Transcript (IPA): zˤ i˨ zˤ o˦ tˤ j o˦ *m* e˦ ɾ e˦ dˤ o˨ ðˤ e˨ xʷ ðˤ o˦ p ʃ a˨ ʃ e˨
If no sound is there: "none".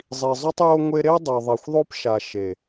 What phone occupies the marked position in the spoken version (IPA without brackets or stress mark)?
ŋʷ